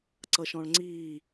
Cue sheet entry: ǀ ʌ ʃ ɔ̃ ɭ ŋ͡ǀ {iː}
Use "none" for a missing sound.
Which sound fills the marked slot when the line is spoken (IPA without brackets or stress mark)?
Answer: iː